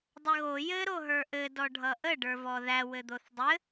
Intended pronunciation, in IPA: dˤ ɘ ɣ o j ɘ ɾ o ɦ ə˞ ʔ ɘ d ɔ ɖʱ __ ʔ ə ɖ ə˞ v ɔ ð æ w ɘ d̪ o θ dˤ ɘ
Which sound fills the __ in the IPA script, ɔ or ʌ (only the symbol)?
ʌ